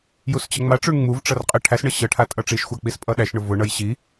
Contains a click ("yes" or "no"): no